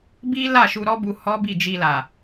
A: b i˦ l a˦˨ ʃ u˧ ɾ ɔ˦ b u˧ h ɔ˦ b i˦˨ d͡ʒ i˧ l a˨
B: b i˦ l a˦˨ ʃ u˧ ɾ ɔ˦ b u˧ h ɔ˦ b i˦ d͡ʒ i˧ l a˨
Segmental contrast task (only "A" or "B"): A